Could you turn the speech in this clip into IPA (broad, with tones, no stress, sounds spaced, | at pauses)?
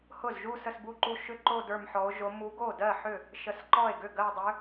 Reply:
h ʊ˥˩ z ʒ u˥˧ s ə˥˧ s b u˥˧ ǃ u˥˧ ʃ ʏ˥˧ ǃ o˥˧ d ə˞˥˧ m ħ ɔ˧˥ o̯ ʒ o˧˥ m u˧˥ ɡ o˥˩ d ɜ˥˩ ħ ʏ˥˩ | ʃ ə˥˧ s ǃ ɔ˥˩ e̯ ɡ ʏ˥˩ ɡ ɜ˥˧ dˤ ʏ˧˥